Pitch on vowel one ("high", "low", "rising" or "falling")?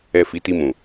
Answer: low